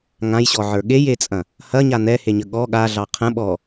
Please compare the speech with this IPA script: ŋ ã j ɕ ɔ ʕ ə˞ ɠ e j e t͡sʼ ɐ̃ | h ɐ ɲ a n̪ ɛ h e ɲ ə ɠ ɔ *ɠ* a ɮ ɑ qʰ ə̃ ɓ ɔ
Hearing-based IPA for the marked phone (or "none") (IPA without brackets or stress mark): ɠ